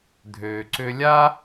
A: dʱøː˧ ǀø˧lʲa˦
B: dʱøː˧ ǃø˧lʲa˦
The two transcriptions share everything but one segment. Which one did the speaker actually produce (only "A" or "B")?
A